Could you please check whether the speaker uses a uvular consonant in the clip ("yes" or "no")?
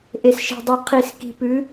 yes